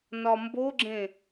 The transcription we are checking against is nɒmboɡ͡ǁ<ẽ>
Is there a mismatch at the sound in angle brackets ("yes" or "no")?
no